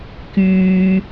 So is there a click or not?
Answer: no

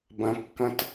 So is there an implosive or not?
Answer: no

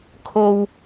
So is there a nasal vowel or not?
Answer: no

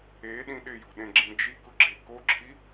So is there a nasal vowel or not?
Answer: yes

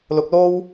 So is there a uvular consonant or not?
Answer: no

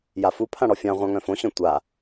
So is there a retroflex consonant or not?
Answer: yes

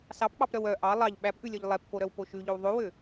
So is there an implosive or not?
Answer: yes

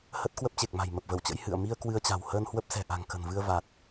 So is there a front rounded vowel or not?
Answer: no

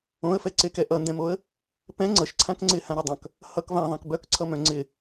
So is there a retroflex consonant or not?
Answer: no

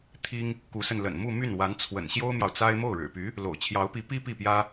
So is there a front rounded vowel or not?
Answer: yes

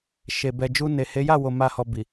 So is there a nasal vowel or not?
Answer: no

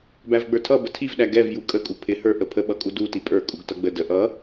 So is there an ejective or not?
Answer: yes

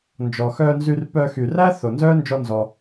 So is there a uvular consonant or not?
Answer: no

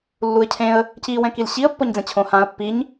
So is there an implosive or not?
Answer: no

